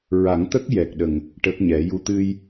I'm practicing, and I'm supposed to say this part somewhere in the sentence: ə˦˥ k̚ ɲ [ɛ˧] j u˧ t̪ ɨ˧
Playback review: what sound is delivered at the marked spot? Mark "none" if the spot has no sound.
ɛ˨˩˦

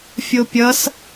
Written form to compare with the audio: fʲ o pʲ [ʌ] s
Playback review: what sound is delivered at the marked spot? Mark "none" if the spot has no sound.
ʌ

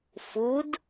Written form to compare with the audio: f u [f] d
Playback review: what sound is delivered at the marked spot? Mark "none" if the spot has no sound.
none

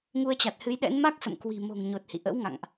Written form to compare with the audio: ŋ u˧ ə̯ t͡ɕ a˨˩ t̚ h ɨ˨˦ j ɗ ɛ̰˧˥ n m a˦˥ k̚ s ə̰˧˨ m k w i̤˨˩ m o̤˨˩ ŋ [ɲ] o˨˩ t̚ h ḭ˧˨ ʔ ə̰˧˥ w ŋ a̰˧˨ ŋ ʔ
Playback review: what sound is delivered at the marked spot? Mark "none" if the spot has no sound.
ɲ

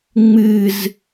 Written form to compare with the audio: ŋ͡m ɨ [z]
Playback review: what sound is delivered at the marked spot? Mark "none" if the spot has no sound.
z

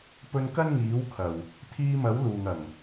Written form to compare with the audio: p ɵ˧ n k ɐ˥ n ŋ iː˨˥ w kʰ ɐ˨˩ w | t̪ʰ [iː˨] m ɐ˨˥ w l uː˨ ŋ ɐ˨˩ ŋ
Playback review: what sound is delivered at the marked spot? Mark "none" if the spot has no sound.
iː˧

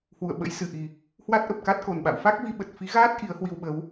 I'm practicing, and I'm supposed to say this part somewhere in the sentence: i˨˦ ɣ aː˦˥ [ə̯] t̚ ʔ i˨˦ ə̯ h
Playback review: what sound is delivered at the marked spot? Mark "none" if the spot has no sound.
none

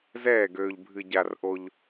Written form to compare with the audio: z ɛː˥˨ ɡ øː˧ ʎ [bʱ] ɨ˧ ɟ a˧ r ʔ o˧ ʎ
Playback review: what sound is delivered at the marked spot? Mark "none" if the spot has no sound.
bʱ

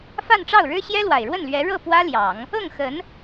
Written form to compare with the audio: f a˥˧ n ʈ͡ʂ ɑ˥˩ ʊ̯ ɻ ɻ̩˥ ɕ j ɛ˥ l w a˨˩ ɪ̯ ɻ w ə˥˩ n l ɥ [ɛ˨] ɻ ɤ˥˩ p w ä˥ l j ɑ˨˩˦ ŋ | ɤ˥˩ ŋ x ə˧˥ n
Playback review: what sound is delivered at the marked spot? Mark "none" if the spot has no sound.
ɛ˧˥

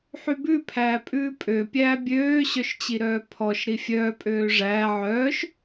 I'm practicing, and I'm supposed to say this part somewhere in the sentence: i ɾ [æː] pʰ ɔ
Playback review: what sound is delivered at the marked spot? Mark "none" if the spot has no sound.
œː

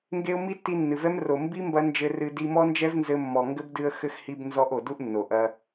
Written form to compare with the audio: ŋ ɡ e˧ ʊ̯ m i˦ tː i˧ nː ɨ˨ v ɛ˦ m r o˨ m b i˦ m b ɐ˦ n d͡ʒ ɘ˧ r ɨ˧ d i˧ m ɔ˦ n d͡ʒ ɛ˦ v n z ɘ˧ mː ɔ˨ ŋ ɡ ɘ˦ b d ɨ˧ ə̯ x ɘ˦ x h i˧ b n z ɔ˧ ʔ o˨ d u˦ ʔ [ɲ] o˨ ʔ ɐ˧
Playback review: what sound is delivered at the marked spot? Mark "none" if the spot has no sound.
nː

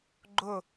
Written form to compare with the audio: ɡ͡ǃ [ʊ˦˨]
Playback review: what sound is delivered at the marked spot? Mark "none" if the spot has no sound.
ʊ˦˨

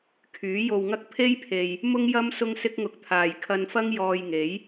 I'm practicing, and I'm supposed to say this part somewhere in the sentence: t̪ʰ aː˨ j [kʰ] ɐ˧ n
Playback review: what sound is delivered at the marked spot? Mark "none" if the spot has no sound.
kʰ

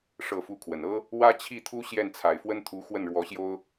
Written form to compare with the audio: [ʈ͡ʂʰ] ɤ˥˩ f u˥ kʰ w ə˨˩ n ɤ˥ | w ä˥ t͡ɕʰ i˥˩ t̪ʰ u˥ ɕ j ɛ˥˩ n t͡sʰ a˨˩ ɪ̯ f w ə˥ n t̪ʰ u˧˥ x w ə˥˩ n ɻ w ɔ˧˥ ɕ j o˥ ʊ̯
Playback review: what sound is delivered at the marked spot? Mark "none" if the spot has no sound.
ʂ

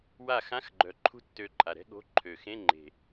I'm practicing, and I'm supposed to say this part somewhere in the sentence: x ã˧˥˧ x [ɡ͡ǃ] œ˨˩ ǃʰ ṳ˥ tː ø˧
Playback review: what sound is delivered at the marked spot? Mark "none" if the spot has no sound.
ɡ͡ǃ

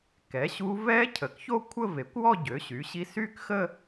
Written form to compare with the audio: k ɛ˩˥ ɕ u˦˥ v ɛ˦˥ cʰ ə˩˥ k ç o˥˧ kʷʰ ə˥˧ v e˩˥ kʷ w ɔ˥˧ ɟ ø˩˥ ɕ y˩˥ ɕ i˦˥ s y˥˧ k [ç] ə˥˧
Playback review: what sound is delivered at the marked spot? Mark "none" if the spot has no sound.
x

